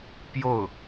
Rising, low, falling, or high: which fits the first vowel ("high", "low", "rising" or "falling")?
falling